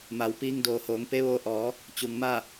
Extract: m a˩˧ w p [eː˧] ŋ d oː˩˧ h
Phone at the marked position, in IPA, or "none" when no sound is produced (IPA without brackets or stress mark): iː˧